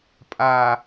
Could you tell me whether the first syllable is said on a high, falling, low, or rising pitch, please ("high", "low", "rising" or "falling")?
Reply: high